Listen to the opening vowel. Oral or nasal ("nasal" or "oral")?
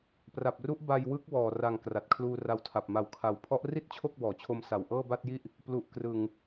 oral